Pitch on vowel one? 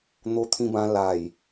high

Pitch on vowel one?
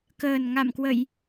low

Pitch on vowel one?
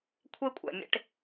high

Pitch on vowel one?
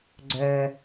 low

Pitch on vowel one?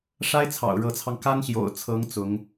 high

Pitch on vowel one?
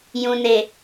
low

